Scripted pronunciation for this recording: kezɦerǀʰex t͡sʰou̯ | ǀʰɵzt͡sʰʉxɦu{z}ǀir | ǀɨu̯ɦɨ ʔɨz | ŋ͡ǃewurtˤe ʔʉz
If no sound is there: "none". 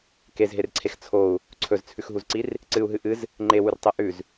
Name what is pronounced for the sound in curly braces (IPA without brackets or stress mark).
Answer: z